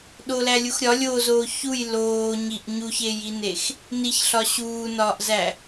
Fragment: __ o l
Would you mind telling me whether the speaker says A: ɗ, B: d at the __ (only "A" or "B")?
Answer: A